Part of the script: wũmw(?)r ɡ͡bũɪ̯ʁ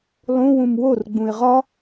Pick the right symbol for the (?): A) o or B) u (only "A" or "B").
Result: A